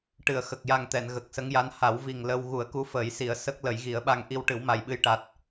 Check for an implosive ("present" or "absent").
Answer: present